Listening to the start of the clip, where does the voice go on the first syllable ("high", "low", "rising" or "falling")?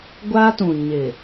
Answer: high